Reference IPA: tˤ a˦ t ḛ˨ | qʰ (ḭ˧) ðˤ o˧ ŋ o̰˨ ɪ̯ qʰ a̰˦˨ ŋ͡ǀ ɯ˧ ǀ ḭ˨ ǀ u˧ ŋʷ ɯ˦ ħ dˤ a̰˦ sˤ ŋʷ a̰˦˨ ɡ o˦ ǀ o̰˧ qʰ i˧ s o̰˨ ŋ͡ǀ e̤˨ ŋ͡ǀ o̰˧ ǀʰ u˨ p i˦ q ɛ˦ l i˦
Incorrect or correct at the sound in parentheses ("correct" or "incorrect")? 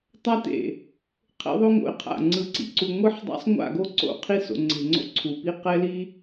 incorrect